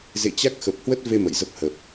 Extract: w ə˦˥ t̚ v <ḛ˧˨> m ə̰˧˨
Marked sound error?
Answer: yes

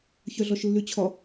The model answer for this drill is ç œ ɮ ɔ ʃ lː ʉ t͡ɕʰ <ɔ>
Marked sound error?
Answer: no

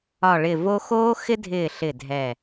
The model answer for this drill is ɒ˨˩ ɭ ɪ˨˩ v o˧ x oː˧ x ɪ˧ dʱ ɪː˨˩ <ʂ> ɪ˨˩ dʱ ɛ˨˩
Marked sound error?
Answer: yes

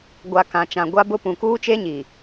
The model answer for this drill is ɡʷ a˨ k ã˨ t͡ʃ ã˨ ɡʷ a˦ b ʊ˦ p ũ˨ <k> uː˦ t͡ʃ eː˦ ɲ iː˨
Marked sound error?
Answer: no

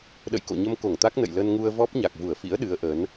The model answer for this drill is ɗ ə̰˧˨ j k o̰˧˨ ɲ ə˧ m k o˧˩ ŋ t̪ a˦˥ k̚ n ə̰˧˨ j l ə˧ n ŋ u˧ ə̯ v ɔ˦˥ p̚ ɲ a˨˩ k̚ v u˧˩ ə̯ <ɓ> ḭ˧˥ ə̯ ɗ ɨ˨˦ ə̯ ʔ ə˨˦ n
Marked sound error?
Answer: yes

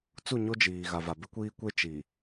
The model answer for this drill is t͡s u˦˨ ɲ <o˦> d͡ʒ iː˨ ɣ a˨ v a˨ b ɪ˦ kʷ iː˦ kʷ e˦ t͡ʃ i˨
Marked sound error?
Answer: no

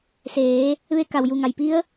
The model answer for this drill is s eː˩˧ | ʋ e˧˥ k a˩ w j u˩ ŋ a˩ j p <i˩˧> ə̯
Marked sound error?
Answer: yes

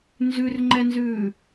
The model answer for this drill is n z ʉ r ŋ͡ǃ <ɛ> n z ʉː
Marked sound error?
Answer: no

